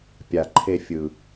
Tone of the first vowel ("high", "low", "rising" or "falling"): low